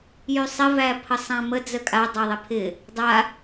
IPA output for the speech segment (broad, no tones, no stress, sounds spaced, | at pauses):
j y sˤ ɪ v æ pʰ ə sˤ ã m ə d͡z ə kʼ a dˤ ɛ ðˤ ɪ pʰ ɪ | dˤ a